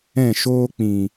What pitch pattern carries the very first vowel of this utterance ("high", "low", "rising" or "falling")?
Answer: falling